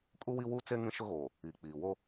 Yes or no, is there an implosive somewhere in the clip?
no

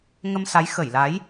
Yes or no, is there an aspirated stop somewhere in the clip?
no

